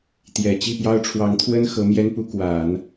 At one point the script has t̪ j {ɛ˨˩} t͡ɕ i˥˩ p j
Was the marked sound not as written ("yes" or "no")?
no